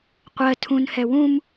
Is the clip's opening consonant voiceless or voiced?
voiceless